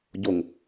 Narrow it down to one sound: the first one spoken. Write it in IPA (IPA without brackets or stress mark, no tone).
ɟ